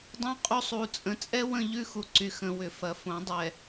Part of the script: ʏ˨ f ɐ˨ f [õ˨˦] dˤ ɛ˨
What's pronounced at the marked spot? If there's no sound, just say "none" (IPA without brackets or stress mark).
õ˨˦